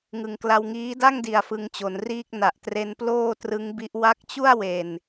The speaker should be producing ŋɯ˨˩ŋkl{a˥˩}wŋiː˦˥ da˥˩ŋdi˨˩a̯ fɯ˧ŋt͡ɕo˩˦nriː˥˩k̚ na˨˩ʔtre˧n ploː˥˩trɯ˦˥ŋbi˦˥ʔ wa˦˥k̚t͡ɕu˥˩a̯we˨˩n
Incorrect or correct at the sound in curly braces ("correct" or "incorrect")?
incorrect